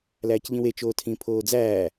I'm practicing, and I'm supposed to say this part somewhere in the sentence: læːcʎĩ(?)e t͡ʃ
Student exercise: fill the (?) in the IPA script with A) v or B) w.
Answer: B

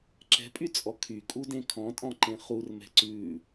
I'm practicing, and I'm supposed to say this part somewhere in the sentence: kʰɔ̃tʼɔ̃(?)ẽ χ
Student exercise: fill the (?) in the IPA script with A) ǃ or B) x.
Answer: A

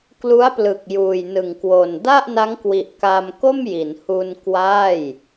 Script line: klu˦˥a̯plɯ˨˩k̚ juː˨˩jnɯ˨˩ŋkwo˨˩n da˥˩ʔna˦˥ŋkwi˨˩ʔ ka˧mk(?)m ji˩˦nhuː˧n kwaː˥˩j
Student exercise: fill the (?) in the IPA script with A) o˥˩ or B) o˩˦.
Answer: A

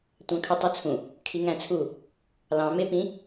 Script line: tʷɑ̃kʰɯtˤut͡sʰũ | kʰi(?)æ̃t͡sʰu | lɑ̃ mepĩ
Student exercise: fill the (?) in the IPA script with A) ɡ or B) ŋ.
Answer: B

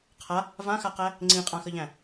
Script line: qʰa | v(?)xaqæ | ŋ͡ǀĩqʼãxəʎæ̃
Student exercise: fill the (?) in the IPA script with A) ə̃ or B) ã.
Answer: B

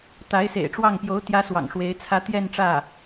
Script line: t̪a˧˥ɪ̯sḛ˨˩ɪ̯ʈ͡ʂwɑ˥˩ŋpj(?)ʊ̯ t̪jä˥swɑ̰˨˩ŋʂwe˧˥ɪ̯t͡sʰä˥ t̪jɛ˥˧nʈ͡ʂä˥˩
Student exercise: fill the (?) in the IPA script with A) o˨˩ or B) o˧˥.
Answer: B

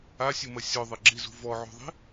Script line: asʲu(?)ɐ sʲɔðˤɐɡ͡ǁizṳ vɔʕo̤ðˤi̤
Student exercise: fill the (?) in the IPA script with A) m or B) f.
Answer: A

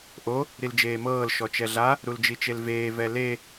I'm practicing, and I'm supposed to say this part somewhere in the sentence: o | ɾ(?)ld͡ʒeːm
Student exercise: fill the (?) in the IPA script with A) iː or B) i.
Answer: B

